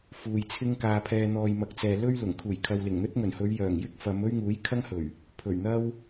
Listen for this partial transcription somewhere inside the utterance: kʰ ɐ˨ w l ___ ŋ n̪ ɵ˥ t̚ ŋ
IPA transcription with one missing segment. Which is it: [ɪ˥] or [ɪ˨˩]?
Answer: ɪ˨˩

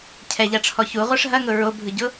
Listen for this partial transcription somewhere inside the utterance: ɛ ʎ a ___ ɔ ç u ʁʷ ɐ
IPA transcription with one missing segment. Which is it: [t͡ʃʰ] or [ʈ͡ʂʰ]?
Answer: ʈ͡ʂʰ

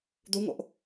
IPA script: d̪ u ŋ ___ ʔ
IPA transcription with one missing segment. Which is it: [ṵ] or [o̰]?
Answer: o̰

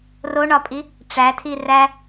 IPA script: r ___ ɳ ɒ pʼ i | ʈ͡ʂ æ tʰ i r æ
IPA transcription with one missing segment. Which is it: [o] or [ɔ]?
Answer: o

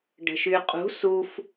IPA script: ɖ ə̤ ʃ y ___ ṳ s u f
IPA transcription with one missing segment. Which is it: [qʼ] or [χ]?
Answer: qʼ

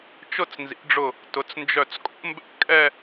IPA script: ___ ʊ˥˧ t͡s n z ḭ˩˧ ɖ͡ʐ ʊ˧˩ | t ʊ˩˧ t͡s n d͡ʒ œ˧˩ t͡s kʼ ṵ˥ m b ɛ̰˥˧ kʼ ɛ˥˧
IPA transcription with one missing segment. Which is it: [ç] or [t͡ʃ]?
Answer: t͡ʃ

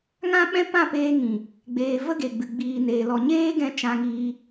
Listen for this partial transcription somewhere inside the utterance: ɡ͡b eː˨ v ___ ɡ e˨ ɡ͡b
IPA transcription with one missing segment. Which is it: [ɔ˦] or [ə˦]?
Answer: ə˦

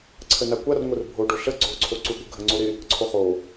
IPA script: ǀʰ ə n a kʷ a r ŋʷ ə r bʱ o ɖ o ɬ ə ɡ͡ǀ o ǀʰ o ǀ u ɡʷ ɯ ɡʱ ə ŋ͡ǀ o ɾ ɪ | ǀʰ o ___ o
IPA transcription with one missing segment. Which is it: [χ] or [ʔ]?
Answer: χ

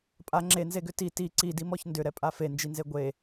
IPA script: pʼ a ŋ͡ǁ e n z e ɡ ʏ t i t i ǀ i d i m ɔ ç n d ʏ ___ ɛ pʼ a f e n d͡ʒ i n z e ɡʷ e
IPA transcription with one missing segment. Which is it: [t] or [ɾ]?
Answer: ɾ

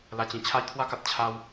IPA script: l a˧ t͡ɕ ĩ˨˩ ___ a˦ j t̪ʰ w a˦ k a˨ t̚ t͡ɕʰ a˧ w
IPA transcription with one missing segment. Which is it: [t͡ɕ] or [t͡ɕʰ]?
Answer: t͡ɕʰ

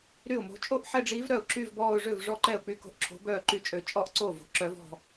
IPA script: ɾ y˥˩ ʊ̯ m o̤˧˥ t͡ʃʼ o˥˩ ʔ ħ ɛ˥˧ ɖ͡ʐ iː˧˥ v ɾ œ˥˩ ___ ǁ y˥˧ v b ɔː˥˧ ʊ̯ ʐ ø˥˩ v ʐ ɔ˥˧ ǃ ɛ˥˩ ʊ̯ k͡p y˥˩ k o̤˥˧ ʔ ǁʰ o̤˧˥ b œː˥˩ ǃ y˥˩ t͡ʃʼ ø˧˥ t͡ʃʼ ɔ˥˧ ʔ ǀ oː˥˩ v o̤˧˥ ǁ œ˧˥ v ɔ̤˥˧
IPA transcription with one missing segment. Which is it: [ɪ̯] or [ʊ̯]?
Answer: ʊ̯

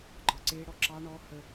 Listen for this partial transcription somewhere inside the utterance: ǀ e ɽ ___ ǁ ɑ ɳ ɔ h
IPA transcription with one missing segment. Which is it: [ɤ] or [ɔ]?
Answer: ɔ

